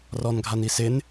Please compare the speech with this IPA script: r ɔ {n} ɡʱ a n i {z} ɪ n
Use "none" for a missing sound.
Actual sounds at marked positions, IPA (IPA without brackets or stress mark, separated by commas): n, s